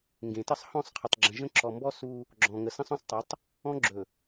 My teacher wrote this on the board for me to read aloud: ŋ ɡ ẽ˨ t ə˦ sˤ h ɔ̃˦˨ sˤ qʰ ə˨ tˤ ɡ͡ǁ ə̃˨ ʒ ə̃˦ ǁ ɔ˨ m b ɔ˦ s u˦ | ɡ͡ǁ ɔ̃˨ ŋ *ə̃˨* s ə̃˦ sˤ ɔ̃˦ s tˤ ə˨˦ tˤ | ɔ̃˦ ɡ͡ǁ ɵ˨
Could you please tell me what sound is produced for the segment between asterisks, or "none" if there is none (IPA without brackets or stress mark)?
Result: ə˨